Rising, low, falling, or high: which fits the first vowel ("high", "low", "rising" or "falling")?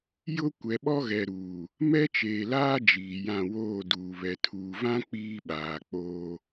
high